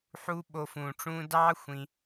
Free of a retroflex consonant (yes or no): no